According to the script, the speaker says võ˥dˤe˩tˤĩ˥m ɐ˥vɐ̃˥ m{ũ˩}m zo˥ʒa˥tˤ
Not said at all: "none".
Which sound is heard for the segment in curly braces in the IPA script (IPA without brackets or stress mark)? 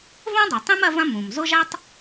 ũ˩